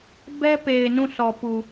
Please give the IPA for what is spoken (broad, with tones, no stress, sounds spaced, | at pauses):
b ɛ˦ p e˨ ɪ̯ n ũ˦˨ sʰ ɔ˨ p u˨